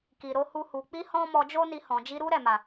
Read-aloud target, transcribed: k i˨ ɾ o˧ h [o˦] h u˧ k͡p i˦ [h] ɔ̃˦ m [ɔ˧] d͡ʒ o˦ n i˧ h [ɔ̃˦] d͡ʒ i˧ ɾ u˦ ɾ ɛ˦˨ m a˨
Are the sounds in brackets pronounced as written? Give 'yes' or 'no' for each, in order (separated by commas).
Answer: no, yes, yes, no